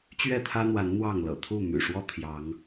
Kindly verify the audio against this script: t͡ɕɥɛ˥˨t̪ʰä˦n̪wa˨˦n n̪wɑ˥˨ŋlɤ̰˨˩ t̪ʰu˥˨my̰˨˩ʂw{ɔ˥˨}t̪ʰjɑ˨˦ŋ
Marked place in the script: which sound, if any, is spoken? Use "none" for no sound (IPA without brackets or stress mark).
ɔ˥˨